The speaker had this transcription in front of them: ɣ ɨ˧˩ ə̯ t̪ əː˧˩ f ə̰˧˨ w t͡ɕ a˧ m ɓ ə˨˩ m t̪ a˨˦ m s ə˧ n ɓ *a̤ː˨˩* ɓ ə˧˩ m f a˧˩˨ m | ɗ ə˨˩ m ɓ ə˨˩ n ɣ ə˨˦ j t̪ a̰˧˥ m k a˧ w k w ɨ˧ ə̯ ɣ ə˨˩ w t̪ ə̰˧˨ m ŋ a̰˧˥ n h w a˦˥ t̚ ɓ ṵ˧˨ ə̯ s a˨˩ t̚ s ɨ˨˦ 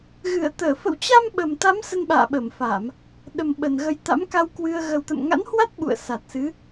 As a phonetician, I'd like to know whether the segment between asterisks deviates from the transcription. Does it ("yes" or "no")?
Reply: yes